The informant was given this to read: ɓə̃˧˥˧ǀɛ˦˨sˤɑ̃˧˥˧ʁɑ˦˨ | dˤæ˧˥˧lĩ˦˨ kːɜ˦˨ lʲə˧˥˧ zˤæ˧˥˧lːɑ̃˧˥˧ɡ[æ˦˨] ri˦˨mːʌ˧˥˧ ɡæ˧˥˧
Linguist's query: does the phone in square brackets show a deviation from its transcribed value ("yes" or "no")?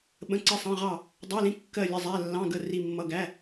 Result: yes